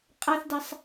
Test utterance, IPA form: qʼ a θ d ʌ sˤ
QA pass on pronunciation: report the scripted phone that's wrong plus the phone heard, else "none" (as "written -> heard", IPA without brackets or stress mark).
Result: ʌ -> a